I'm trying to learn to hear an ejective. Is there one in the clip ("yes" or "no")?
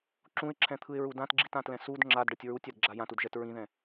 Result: no